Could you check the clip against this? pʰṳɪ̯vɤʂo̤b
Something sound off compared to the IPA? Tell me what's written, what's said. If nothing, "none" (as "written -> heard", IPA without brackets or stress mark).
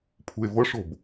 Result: none